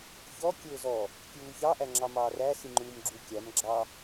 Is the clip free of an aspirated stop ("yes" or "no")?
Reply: yes